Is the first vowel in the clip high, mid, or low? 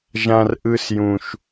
low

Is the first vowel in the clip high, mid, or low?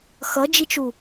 mid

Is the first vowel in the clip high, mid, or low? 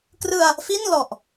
high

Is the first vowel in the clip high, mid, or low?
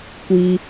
high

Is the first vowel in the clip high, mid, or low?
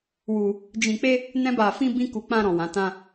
high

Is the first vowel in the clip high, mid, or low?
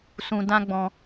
high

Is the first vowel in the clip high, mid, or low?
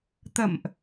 mid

